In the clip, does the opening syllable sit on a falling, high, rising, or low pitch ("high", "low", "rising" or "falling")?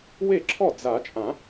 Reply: falling